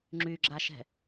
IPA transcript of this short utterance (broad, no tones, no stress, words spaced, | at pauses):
ŋ͡ǁyɡ͡ǁaʃɛ̤